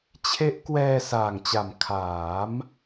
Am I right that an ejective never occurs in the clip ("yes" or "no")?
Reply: yes